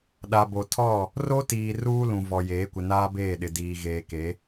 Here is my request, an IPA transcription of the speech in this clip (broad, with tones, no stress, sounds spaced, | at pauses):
ɗ a˨ b o˨ tʰ ɔ˦˨ | r o˦ t iː˨ r uː˦ l ũ˨ v ɔ˨ j eː˨˦ kʷ ɪ˨ n aː˦ b eː˦˨ ɗ ɪ˨ d iː˨ ɣ eː˨ k e˨˦